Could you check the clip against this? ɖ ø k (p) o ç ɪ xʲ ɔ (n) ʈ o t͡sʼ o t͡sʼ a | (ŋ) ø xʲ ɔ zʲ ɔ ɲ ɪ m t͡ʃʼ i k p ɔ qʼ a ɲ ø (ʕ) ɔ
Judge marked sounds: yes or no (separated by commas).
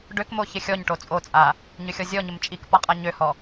no, no, no, no